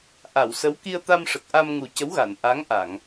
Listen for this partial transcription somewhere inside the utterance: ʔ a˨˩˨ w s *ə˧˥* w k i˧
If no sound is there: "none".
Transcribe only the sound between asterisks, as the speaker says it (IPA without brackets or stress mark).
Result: ə˧˥